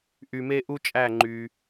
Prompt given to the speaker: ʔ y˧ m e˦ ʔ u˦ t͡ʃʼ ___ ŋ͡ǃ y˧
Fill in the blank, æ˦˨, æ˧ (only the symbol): æ˦˨